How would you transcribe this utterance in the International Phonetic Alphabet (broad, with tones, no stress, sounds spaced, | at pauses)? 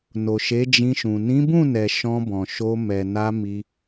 n o˨ ʃ e˨˦ d͡ʒ ĩ˧ ʃ ũ˨ n ĩ˨˦ b ũ˦˨ n ɛ˨ ʃ ɔ̃˧ b ɔ̃˨ ʃ o˧ m ɛ˨ n a˧ m i˧